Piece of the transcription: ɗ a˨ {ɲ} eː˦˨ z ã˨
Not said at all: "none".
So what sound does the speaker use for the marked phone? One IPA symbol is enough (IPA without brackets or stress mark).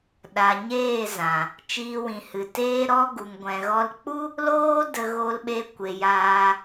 ɲ